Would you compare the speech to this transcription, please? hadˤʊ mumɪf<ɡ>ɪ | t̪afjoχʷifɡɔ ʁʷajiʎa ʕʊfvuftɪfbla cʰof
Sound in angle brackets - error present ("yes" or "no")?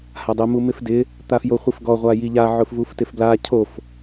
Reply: yes